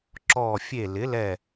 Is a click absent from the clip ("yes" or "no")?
no